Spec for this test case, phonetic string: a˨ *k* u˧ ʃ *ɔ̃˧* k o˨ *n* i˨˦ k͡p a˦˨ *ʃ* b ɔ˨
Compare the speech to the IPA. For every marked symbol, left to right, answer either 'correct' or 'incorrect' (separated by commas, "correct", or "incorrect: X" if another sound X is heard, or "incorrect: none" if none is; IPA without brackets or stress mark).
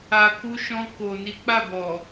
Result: correct, correct, correct, incorrect: none